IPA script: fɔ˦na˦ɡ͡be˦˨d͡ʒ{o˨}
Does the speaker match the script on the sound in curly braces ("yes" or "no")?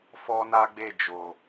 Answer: yes